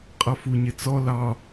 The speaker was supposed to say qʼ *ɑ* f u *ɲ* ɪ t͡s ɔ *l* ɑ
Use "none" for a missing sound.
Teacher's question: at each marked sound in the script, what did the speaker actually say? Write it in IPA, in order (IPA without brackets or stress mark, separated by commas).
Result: ʌ, ɲ, l